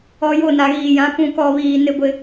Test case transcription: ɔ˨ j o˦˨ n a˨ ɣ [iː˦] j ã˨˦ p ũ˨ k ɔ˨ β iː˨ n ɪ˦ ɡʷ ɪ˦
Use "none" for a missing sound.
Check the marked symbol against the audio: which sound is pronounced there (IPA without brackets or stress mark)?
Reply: iː˨